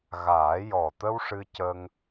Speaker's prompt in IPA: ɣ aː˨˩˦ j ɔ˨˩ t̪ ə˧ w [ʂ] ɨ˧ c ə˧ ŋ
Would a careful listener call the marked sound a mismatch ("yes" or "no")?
no